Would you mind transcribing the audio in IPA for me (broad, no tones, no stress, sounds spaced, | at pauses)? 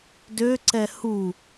d ø ǀ ɛ h u